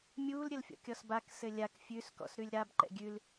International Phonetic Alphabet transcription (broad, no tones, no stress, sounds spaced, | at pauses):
mʲ uː l ɾʲ ɘ l fʲ ɔ̰ kʲ ɔ s b a k s ɘ lʲ a k fʲ ʉ s k ɔ̰ s ɾ ʉ lʲ ɾ a b ǃ ɛ̰ ɡʲ ʉ l